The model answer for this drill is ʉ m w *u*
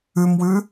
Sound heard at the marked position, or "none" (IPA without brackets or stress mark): ʉ